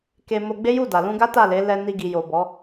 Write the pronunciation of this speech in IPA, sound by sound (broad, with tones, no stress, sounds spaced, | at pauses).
k e˧ m o˧ ɡ͡b e˦ j u˦˨ d a˨ l ũ˧ ɡ a˦ t a˦˨ l e˨˦ l ɛ˧ n i˧ ɡ i˨ j o˨ b ɔ˨˦